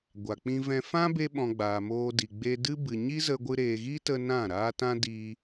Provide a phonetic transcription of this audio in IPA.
ɡʷa˨k͡pĩ˧vɛ̃˧ fã˦be˧ɓɔ̃˨ ɡ͡baː˨moː˧di˨ ɡ͡be˧dɨ˦bɨ˨ ɲi˦zə˧ɡʷɨ˧ ɾeː˨ɣi˦tə˧ nã˦˨ɾaː˦ tã˦diː˧

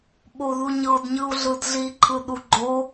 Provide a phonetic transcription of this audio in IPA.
ɓoðuɲɤd ɲɯu̯ɮɯdɮiǃʰɯ ɗuɡ͡ǃo

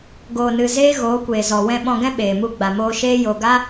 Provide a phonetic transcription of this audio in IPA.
ɡoː˨nɨ˨ zeː˦ɣoː˨˦kʷeː˨zɔ˨ wɛ̃˧ɓɔ̃˧ɡɛ̃˦ ɓeː˨mu˧ ɡ͡ba˨moː˧ʃeː˦jo˧ ɡa˦

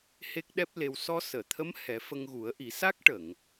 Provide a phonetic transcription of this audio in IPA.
he˦˥k̚ɗɛ˦˥p̚le˧w sɔ˧səː˨˩˨t̪ʰə˧˥m hɛ˨˩˦fə˧ŋɣu˨˩˦ə̯ʔi˨˩˦ sa˦˥k̚ʈə˨˩˨ŋ

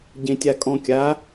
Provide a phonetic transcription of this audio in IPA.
ɟẽtʲakʼɔ̃kʲa

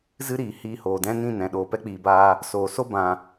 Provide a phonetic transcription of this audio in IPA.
zɨ˦ɾiː˨ hiː˧hoː˨dɛ̃˦ nĩ˦˨nɛ̃˨ ɗoː˨pɛ˦k͡piː˨baː˧ | soː˨ so˦bã˨

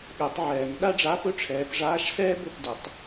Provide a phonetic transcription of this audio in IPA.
ɠɛ˨˩˦tˤʕɛː˨˩˦ŋ ɗa˥ɖ͡ʐa˧˥˧pɵ˥ ʈ͡ʂʰɛː˨˦pʐaː˧˥˧ʃ sɛː˥bɵ˥˩p də˨˩˦tˤ

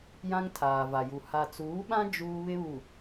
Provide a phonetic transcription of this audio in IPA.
jã˦ŋtʰaː˨va˨ju˨ ha˨t͡suː˨˦ɓã˦ d͡ʒuː˦βɪ˦βu˨

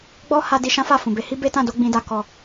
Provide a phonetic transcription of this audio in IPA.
ɡ͡bɔ˦ha˧ di˧ʃã˦fa˦˨ fũ˨be˨˦hi˦ be˦tã˦˨do˧ ɡ͡bĩ˧da˧ kɔ˨

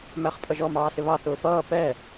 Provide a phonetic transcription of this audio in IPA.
mæχpʼʌʒɔ mɑːsɪβɑ θʊːfʌː pɛ

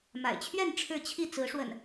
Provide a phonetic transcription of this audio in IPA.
ma̰˨˩ɪ̯t͡ɕʰɥɛ˥˨n ʈ͡ʂʰɻ̩˥˨t͡ɕʰi˥˨ t͡sɹ̩˨˦ʂwə̰˨˩n

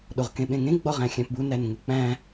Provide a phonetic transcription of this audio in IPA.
ɗoʁkẽɓẽŋẽ ɡ͡bɒʁæ̃xʲæ̃pbu nænŋuk͡pæ̃

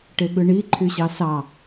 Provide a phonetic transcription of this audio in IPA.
ʈeɠɯɳi ǃʰyɕɑsɑ

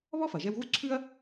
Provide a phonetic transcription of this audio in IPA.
βɔ˥fɐ˩ ʒɛ˧wɣu˥ǀʰʉ˥ɐ̯

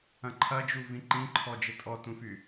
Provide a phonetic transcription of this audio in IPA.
ɐ̃ǃʰɐd͡ʒu vĩǃĩǃʰɔ d͡ʒɪtʼɔtũfy

